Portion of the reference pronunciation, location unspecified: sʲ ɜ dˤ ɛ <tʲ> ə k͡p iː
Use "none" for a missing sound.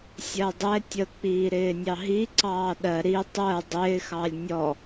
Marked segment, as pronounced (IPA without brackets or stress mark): tʲ